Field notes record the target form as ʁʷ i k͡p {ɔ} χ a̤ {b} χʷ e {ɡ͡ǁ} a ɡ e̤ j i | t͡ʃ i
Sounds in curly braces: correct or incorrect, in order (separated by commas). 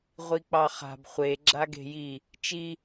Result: incorrect, correct, correct